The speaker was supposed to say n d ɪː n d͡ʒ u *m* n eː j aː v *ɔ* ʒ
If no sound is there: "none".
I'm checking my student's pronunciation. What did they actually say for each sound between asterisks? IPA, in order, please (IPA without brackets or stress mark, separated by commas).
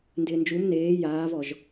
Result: m, ɔ